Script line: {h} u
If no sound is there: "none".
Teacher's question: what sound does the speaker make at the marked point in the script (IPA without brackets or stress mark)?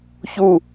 ç